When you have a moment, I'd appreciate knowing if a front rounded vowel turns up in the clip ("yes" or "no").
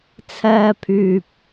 yes